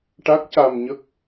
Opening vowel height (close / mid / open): open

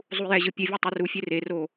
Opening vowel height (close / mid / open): close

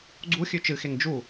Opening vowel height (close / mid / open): close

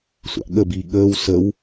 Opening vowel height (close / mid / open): open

